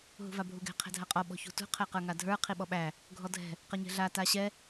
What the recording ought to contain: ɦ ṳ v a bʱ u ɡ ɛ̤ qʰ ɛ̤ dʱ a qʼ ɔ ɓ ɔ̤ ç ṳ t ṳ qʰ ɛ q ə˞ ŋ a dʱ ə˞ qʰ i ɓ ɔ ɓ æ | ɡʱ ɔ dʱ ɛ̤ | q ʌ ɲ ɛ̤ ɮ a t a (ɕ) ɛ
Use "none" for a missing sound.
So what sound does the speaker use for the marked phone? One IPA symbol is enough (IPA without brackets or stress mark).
ɕ